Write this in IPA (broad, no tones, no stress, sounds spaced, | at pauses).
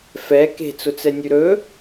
f ɛ k e̤ t͡s ʊ t͡s ɛ nʲ ʉ ɾ ɵ